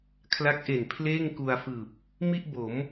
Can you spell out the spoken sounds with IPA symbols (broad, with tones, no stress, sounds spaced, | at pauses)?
kʰ l a˦˥ k̚ ʔ e˨˩ n pʰ l eː˥˩ ŋ k u˧ a̯ f ɯː˨˩ p̚ | m i˥˩ ʔ b o˩˦ m